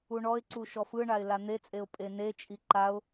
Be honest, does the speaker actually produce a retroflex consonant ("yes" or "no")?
yes